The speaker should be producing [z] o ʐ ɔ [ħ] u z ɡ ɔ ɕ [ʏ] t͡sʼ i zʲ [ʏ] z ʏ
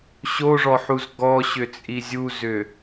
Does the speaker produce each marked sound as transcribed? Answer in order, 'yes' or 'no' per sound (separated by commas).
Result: no, yes, yes, no